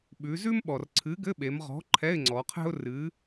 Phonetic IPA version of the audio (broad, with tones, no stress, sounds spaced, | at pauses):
ɓ ʉ˩˧ z ʉ˥ m ɓ ɔ˩ r ǀʰ ɨ˨˥ ɡ ɘ˧˥˧ ɓ e˩˧ m ʁ ɔ̤˨˥ ǃʰ ɛ˧˥˧ ɪ̯ ŋ͡ǀ ɔ˩˧ qʰ ɛ̤˥ ʊ̯ r ɨ˨˥